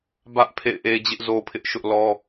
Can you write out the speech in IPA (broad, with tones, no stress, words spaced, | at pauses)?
bä˦ʔ pʰḛ˦˨ɪ̯ʔe˦ d͡ʑɪ˦ʔzo˦pʰɪ˦ʔʃʊ˦ʔ lɔ˦